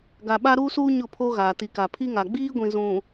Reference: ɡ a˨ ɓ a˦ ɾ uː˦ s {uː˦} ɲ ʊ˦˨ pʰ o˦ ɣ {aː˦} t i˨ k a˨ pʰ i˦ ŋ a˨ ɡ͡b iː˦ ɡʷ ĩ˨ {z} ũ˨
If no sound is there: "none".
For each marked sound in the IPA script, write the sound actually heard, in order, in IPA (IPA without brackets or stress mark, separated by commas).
uː˦, aː˨, z